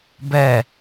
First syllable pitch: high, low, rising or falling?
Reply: falling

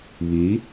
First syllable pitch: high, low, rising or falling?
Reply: rising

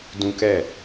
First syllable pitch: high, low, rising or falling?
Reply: high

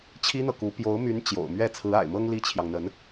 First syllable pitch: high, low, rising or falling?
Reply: high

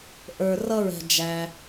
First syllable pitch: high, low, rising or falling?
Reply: low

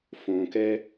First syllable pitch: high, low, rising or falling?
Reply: low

